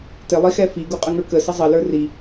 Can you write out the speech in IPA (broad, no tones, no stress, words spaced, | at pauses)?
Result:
tɪlˠixɛ fiɡuqʼəŋə˞ kəsə zˤʌlə˞ ri